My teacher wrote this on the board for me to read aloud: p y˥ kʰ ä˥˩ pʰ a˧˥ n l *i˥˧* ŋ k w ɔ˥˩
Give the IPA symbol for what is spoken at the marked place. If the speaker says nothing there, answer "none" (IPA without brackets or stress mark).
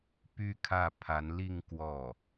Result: i˥˧